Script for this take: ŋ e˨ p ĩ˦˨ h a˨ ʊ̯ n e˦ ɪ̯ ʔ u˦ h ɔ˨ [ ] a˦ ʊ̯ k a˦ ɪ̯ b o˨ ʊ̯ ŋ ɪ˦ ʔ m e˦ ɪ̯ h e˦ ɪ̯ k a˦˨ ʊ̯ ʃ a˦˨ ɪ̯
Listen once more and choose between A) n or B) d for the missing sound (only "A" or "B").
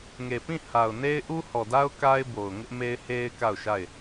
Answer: B